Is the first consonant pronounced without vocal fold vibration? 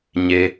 no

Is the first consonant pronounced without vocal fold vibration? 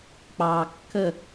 yes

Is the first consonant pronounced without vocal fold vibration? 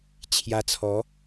yes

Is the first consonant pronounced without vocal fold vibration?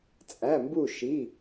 yes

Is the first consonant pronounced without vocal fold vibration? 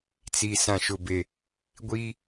yes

